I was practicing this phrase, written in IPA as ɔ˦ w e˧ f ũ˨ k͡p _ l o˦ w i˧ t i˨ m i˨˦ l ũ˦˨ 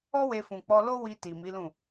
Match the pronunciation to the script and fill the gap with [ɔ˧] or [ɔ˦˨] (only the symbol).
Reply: ɔ˧